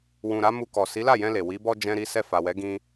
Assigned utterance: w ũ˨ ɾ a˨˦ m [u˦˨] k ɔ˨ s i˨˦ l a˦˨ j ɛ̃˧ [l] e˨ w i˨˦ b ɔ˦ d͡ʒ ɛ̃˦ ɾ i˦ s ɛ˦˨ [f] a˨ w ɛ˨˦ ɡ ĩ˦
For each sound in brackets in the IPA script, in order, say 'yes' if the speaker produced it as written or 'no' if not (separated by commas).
no, yes, yes